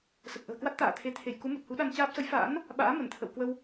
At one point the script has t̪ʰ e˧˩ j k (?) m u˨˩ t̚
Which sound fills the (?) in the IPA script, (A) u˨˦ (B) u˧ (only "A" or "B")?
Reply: A